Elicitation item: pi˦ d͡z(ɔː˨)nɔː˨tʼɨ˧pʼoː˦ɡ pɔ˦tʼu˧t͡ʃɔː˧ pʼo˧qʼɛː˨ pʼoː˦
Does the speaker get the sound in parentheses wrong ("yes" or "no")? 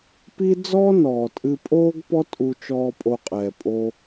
yes